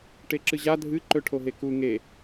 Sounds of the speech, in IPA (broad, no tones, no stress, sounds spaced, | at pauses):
ʈ e ǁ ɨ ʑ a dʱ ɨ ǃ ɵ ʈʰ o ɦ e k u ŋ e